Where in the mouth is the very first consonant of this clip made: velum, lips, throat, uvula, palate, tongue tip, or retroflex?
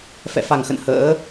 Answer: lips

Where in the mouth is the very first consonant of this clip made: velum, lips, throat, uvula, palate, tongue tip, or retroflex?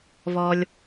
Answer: lips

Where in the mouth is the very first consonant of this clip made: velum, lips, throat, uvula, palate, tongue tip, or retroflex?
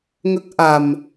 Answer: velum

